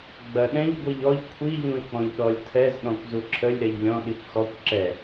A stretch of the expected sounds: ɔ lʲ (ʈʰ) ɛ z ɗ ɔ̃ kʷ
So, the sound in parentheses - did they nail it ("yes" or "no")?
no